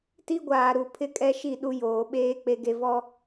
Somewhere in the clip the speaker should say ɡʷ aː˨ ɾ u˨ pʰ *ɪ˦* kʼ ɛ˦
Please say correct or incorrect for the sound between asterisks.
correct